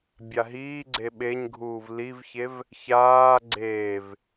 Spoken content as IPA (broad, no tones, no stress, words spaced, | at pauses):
bʲaɦiːɡ͡ǀe ɓeɲɡʱuːv livçev | çaː ɡ͡ǀeːv